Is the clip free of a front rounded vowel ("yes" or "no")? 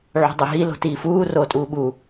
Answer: yes